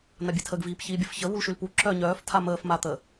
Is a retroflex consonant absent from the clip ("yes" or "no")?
yes